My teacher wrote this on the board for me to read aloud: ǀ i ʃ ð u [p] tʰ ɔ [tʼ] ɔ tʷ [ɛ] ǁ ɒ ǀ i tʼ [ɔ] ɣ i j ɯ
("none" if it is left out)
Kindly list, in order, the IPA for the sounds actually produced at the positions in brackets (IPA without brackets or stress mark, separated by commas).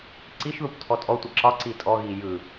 p, tʼ, ə, ɔ